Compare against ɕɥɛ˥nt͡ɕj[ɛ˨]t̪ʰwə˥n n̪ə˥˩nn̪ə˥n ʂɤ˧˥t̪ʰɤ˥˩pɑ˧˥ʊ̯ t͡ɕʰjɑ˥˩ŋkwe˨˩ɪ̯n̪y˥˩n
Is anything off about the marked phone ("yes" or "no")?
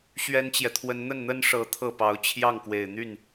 no